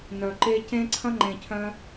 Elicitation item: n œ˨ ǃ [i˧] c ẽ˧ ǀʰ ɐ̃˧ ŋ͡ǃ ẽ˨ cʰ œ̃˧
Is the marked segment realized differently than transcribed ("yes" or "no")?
yes